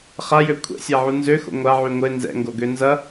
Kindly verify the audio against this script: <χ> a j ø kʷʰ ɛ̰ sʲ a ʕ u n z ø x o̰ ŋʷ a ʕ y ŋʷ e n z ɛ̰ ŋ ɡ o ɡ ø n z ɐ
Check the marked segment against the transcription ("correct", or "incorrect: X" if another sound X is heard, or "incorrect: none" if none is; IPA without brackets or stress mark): correct